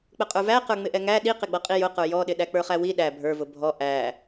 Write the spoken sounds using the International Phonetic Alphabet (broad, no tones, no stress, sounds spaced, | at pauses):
k͡p ə qʼ ə˞ v æ q ə˞ ŋ͡m ɪ ʔ ɛ ŋ æ ɗ i q ɪ ɡ͡b ʌ qʼ i j ʊ q ə˞ j ɔ ɗ ɪ ɗ æ k͡p ə˞ χ æ w i ɗ æ bʱ ə˞ v ʊ bʱ ɔ ʔ æ